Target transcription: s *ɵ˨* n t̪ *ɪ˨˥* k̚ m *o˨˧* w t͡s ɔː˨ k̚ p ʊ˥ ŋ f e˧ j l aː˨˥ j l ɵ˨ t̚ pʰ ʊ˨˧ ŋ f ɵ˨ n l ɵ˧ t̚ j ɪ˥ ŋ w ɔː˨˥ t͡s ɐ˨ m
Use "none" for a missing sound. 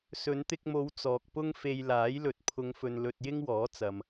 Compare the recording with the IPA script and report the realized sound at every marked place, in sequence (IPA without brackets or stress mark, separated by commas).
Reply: ɵ˨˧, ɪ˧, o˨˧